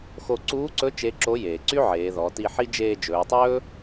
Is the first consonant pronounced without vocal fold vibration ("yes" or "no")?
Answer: yes